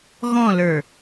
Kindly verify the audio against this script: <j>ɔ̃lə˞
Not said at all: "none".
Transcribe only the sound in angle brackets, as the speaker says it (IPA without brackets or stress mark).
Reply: ɣ